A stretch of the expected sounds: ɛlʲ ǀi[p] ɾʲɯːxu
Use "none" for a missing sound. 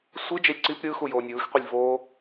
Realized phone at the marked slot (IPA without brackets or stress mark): p